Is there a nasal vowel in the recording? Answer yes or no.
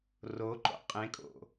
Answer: yes